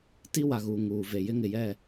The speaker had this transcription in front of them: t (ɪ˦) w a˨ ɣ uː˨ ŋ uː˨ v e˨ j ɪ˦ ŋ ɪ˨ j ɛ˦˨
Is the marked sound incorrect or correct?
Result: incorrect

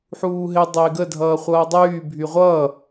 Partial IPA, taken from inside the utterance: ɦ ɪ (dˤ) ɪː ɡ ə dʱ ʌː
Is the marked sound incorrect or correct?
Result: correct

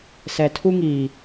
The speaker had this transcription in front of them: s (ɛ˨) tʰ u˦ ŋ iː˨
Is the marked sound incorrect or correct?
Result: correct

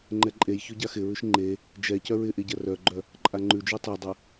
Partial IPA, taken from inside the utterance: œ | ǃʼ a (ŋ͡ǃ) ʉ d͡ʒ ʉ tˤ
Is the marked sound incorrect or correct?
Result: correct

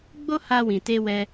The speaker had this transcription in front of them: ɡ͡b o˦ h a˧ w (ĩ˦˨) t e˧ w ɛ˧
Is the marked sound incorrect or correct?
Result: incorrect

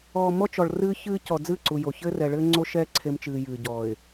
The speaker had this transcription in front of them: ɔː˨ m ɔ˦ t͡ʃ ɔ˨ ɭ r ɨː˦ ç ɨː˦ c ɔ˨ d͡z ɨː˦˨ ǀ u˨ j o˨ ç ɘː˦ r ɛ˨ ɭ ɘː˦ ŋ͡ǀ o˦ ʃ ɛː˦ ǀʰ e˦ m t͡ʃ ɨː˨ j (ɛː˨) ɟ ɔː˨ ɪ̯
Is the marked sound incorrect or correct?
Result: incorrect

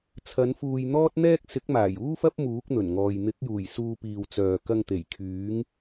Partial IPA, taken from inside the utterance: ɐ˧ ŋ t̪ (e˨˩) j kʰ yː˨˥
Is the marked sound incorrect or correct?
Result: correct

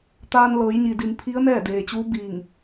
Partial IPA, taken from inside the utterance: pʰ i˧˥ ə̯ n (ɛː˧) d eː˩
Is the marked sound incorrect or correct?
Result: incorrect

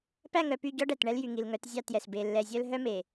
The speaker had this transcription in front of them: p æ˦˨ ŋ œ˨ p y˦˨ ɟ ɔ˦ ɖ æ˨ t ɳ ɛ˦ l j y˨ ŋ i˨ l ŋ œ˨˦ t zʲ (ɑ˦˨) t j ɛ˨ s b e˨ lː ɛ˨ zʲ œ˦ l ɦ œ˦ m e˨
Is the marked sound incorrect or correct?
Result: correct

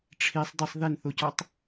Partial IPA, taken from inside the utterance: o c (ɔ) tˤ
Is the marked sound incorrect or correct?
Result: correct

